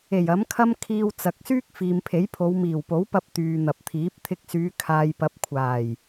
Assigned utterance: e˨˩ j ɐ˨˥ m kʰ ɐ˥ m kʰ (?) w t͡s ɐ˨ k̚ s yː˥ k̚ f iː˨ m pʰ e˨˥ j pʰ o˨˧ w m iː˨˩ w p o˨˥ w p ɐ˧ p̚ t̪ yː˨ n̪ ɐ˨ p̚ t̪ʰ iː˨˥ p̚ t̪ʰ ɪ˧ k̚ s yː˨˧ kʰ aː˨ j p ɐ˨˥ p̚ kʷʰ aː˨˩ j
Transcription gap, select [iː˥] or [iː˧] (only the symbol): iː˧